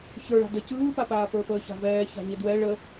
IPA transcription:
ç ə˞ ɭ a̤ d ə c ɯː p a p aː p ə˞ f əː ç a̤ v ɛː ç a̤ ɲ ə d w ɛ ɭ ə

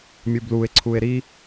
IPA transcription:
mʲ u b l u e̯ ǀʰ u e̯ ɾ i

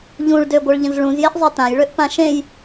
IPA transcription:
ʎ ũ ɭ d ø ɡʷ ə˞ ɭ ʎ ə̃ z ɭ ũ z j e ʔ zˤ e t ã j ɭ ø ʔ p ã ʃ ẽ j

